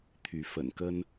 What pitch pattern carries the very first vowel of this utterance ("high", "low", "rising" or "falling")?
rising